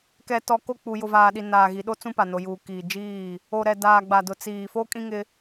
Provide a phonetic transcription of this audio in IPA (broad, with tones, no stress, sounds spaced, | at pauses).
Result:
k ɛ˨ t ɔ˨ k o˦˨ k͡p u˨ j ʊ˨ v aː˨ ɗ i˨ n aː˨ ɣ i˨ ɗ o˦ t͡s ũ˦ p a˨ n o˨ j uː˨ k iː˨ d͡ʒ iː˦˨ | o˨ ɾ ɛ˨ d aː˨ ɡ͡b a˨ d ʊ˨ t͡s iː˨ f o˦ kʼ ĩ˦ ŋ ɪ˦